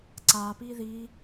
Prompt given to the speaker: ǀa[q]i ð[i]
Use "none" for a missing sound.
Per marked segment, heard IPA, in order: p, i

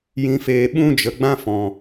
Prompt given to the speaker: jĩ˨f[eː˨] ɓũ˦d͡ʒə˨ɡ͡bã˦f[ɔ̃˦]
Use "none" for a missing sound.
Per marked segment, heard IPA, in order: eː˨, ɔ̃˨

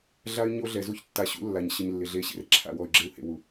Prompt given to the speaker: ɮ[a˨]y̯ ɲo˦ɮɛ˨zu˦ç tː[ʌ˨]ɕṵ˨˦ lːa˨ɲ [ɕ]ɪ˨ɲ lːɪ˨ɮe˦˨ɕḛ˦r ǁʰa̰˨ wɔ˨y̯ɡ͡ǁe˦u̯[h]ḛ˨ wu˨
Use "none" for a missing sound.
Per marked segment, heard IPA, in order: a˦, a˨, ɕ, h

